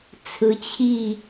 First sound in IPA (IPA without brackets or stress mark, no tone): t͡sʰ